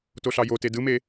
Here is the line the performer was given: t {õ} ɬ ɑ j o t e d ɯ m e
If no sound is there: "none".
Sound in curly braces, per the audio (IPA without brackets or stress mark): o